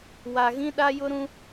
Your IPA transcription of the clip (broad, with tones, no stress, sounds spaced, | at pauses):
w a˨ ɣ ĩ˦ ɗ a˦ j ʊ˦ ɾ ũ˦